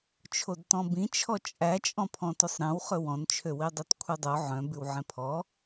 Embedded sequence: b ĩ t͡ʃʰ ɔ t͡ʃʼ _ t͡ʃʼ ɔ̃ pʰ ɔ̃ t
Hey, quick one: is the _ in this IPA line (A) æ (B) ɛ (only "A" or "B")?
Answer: A